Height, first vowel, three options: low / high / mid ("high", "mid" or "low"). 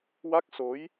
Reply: low